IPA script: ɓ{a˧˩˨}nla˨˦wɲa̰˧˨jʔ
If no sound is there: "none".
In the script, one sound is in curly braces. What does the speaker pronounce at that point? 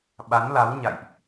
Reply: a˨˦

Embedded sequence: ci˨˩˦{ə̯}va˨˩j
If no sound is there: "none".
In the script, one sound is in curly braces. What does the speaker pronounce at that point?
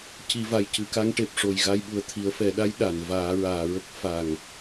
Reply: none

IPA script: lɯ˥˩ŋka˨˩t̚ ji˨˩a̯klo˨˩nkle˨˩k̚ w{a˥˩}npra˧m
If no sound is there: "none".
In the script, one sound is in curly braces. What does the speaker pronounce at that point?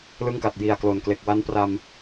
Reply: a˦˥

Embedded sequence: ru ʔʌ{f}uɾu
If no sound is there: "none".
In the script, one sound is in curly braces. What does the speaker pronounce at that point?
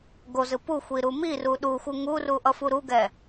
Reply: f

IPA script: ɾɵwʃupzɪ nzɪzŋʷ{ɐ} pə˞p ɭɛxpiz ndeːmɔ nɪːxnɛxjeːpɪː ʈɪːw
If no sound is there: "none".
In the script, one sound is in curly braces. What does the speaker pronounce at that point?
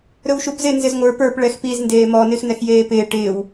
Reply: ə˞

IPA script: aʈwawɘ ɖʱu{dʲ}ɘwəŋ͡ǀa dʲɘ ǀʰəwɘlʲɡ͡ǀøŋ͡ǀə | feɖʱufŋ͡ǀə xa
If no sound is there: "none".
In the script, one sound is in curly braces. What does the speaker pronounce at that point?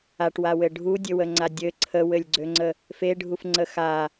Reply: dʲ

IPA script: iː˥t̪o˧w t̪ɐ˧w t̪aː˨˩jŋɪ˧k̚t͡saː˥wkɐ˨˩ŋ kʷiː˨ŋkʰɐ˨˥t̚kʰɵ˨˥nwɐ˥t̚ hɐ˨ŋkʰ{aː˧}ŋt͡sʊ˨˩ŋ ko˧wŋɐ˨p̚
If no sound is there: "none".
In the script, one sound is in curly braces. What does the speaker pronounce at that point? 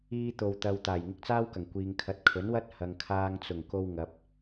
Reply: aː˧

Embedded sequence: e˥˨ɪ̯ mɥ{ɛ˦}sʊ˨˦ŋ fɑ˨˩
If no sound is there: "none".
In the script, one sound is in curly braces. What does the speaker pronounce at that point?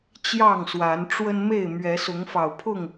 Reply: ɛ˨˦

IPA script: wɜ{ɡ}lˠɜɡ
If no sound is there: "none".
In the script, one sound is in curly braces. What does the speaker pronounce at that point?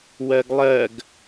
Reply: ɡ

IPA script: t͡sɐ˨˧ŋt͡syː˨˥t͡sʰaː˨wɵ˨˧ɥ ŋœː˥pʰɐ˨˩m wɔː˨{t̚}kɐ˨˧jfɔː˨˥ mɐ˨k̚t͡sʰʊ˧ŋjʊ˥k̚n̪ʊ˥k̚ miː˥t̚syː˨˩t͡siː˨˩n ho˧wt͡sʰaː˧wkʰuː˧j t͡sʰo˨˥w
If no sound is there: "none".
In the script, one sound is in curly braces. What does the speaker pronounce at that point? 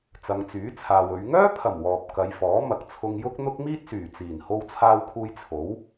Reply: p̚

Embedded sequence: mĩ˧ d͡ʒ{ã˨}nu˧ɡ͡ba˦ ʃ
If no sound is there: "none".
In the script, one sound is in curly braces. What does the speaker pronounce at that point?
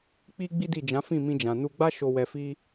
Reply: ã˨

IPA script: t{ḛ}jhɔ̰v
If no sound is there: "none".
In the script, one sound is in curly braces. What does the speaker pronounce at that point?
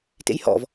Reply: ḛ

